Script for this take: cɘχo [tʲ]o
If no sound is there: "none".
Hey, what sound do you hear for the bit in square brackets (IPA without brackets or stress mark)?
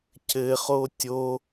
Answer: tʲ